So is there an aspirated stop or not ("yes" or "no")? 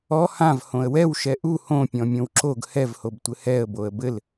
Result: no